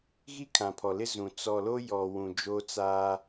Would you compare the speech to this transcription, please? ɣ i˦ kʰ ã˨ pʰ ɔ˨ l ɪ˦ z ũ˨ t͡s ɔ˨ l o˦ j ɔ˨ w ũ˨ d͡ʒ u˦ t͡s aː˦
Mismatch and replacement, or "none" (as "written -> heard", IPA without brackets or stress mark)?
u˦ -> o˦